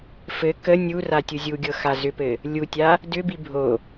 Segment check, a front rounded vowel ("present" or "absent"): present